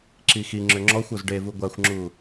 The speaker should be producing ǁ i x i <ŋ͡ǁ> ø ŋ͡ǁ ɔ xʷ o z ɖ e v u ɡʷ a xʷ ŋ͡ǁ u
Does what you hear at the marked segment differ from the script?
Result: no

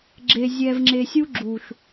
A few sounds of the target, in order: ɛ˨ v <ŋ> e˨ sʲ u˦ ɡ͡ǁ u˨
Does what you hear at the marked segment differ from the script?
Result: yes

